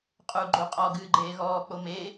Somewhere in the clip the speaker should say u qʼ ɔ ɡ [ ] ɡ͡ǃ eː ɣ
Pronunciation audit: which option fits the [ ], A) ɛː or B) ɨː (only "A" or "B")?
B